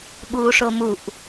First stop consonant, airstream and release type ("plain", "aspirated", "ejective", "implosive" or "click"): implosive